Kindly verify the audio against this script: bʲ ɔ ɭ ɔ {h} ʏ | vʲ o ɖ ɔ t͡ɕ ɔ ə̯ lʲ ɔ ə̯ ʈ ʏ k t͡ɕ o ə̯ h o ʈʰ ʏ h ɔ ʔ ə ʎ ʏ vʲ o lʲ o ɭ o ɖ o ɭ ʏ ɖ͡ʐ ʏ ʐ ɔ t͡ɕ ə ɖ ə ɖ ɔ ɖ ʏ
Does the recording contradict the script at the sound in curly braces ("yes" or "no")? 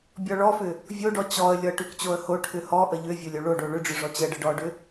yes